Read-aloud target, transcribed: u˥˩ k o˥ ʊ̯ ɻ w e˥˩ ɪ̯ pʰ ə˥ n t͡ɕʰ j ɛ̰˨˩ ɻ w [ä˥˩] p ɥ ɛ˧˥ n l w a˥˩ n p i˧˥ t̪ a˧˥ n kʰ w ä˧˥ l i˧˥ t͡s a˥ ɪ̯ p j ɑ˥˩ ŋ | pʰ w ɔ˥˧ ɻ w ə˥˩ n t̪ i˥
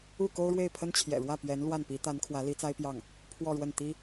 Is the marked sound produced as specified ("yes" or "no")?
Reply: yes